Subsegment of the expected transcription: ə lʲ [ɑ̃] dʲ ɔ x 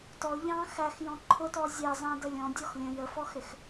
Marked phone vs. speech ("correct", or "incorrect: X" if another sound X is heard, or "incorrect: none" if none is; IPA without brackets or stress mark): incorrect: ɔ̃